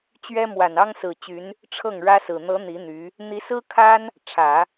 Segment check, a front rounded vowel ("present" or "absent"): present